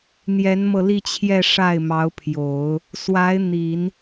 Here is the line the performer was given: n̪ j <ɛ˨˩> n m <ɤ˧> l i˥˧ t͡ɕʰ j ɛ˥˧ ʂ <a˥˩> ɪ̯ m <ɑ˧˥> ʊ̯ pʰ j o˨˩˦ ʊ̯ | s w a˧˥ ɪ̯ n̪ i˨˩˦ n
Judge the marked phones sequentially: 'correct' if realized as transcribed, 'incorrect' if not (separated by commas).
incorrect, correct, correct, correct